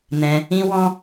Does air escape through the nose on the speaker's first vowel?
yes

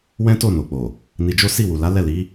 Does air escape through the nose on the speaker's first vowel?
yes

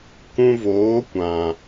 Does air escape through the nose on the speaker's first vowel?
yes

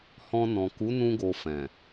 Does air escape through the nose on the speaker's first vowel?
yes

